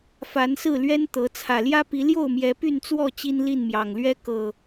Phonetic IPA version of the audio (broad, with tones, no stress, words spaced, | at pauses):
fa˨˦nsɹ̩˥˨lɥɛ˦n t̪ɤ˨˦ t͡sʰä˨˩ljä˦pi˨˦ ljo˥˨ʊ̯mjɛ˨˦ py˥˨nt͡swɔ˥˨ t͡ɕi˦nli˥˨nmjɑ˨˩ŋlɥɛ˦ kɤ˨˩